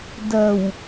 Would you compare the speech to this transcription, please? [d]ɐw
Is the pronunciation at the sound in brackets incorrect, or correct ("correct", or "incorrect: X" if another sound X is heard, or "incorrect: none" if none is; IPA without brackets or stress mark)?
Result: correct